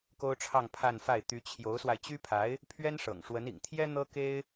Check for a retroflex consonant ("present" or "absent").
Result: present